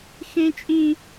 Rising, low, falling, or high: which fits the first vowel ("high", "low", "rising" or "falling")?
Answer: high